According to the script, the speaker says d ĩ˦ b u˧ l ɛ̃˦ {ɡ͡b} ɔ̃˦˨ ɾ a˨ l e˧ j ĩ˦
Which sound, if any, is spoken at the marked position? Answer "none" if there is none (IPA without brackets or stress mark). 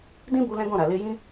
ɡ